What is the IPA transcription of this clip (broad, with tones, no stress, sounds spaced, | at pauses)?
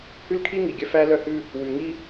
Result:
h ʉ˦ l kʰ i˦ ŋ i˨ ɡʲ œ˦ f æ˦ l œ˦ h ʉ˦ | w ʉ˨ ŋ i˦